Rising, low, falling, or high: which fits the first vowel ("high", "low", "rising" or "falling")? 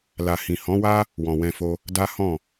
low